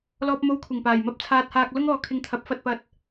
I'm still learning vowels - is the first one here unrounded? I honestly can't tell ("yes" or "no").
no